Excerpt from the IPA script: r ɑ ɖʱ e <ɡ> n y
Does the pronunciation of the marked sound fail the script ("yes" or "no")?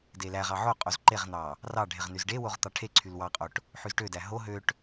yes